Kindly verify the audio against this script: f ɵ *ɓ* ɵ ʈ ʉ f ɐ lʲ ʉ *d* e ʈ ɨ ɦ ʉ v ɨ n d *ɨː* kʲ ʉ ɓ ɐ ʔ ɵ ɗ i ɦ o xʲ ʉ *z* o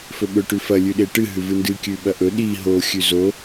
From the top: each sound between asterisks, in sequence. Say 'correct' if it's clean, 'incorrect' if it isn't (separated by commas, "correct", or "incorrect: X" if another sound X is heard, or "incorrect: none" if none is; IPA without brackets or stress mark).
correct, incorrect: ɗ, incorrect: ɨ, correct